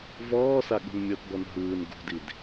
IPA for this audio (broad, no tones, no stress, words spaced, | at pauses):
vɔːsa ɠṳnmʲɤtbɔn ɦɯːn ɡṳdid